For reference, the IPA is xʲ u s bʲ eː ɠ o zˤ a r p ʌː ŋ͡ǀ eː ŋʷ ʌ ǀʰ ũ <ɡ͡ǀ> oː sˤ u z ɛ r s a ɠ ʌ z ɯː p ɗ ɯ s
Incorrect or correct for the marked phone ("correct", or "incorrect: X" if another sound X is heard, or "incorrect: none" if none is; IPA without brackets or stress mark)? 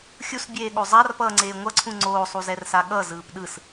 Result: incorrect: ŋ͡ǀ